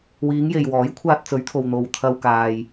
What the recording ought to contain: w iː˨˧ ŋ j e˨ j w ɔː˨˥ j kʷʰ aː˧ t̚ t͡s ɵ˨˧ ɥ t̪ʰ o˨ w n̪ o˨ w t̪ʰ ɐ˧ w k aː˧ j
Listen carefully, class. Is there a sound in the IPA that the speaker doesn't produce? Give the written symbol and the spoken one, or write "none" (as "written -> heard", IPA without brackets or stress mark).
none